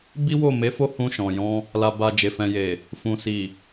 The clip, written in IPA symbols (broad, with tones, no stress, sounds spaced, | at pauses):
b i˦ w o˦˨ m e˨˦ f o˦˨ h ũ˧ ʃ ɔ̃˨ j ɔ̃˧ | l a˨ b a˨ d͡ʒ e˨ f ɛ̃˨ j e˨ | f ũ˨ s i˨